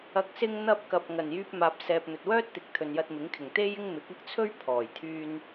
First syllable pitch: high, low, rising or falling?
low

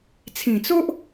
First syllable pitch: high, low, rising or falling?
low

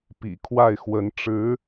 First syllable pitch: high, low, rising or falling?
low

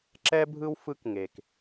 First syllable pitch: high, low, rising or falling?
high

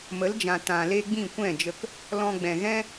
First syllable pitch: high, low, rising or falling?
rising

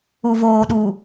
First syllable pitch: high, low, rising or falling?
low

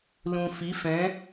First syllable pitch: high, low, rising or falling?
low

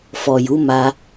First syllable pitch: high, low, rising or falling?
low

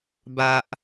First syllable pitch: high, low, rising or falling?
high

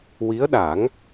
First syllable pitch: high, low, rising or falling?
rising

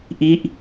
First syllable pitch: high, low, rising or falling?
falling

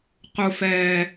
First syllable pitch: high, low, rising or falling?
low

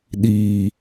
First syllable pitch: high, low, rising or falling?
low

